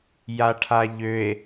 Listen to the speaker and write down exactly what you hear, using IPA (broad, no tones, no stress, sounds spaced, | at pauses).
j a ʈʰ a ʎ ø e̯